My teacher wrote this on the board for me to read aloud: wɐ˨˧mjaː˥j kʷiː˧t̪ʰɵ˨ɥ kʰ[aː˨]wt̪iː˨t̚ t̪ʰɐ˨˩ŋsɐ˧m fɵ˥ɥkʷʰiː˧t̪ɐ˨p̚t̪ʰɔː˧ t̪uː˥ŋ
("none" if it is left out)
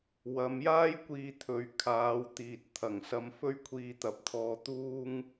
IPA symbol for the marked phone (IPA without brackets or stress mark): aː˨˧